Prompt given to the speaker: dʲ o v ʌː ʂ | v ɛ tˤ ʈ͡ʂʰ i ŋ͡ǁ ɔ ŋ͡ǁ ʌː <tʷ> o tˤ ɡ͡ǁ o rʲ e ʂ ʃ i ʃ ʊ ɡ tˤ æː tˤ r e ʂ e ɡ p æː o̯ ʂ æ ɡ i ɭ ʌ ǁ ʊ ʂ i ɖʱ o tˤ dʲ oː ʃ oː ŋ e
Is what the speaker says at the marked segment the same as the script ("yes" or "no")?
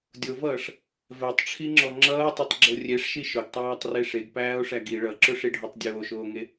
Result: no